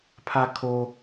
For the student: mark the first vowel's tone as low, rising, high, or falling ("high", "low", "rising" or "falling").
high